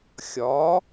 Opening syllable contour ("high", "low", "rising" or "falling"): rising